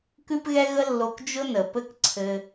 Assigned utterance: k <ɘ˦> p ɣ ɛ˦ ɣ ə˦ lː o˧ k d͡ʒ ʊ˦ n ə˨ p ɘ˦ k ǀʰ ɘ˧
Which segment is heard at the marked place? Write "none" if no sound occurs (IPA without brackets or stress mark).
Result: ʉ˦